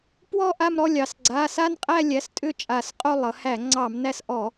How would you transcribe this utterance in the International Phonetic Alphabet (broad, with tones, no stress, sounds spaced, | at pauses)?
p w ɔ˥˧ ʔ a˥˧ m ɾ ɔ˥˧ lʲ ɑ˩˧ s ɡ͡ǀ a˩˧˩ s a˥˧ n qʼ æ˥˧ lʲ æ˩˧˩ s tʼ ʏ˥˩ t͡ʃʼ a˧˩˧ s qʼ o˥˧ lˠ ʌ˩˧ h æ˧˩˧ ŋ͡ǀ ɑ˧˩˧ m n æ˥˧ s ʔ ɔ˧˩˧